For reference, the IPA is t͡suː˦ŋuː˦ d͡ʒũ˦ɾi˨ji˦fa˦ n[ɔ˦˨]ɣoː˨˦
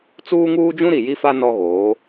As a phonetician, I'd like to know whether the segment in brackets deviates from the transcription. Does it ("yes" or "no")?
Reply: yes